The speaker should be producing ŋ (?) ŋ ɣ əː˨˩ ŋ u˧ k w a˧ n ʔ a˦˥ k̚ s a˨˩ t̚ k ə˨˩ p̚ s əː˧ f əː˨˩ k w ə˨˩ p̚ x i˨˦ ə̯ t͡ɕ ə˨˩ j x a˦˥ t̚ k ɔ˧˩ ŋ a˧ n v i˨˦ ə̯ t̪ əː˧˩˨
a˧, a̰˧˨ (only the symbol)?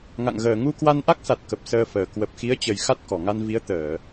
a̰˧˨